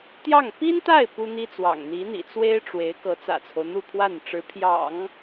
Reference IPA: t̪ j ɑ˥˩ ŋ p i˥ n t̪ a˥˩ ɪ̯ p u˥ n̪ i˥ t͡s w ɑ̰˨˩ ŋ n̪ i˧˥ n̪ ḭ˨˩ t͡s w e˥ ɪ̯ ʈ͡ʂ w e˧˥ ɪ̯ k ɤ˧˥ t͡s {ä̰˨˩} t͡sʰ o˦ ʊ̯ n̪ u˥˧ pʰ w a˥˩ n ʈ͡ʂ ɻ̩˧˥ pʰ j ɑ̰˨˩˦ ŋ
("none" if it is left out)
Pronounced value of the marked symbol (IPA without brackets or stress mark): ä̰˨˩